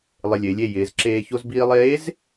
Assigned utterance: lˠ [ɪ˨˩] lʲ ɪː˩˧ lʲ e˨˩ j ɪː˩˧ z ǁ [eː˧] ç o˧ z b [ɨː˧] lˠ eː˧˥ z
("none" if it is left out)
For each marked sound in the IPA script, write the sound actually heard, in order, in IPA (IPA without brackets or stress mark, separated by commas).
ɪ˨˩, eː˧, iː˧